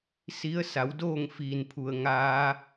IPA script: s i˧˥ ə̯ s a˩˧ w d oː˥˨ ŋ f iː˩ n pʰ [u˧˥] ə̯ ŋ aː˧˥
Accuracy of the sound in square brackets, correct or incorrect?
incorrect